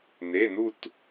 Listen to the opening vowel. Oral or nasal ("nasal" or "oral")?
oral